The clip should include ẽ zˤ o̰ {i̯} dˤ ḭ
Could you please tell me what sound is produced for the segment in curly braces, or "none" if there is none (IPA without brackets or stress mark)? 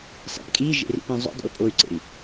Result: none